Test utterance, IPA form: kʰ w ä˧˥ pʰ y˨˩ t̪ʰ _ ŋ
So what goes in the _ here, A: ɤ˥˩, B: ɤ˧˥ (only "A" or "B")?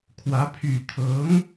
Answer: B